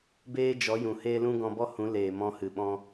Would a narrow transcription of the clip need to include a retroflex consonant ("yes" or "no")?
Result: no